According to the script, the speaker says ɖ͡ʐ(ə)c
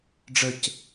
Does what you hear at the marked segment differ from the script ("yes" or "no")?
no